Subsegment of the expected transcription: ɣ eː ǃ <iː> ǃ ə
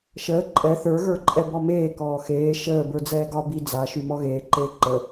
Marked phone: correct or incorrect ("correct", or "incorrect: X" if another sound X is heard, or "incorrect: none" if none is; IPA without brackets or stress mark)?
incorrect: eː